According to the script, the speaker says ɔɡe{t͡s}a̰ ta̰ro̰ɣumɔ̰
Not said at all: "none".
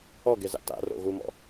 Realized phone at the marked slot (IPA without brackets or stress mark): z